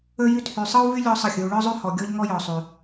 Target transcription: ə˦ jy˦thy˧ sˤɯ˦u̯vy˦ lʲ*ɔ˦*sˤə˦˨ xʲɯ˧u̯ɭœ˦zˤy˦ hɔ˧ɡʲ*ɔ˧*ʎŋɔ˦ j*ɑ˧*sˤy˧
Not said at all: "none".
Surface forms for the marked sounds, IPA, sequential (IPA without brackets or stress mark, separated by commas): ɔ˦, ɔ˦, ɔ˧